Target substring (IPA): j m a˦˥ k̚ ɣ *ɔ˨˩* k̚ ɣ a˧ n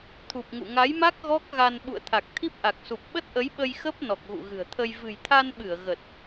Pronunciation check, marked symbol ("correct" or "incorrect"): incorrect